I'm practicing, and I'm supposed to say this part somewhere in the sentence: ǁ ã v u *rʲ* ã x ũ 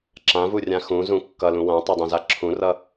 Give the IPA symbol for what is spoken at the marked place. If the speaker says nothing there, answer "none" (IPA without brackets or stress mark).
rʲ